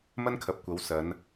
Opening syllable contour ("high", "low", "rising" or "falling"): high